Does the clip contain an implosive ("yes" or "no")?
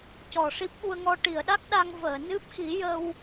yes